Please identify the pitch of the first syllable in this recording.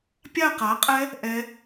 falling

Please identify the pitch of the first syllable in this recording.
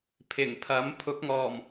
low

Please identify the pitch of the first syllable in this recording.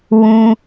high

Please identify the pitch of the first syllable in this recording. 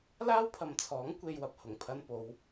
high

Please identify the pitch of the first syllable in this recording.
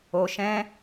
low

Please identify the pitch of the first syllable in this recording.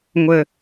low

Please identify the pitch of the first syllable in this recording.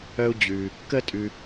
high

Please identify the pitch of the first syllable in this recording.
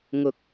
high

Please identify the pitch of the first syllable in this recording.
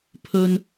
high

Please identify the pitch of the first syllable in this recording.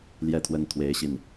falling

